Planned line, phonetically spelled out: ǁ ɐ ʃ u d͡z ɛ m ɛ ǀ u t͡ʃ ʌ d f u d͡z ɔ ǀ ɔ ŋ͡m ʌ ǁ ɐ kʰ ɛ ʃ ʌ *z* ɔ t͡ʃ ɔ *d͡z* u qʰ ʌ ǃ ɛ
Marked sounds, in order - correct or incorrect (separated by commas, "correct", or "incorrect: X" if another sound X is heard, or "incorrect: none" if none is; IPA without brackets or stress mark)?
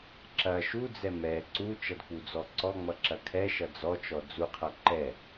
incorrect: d͡z, correct